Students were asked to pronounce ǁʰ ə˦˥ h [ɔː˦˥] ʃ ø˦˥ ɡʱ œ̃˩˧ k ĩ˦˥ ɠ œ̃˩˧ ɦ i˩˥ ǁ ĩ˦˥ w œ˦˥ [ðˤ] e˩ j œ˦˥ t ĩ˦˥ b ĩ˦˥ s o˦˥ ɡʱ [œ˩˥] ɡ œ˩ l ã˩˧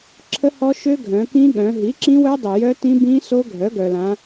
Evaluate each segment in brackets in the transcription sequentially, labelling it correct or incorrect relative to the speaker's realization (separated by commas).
incorrect, incorrect, correct